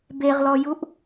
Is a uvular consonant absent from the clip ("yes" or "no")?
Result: no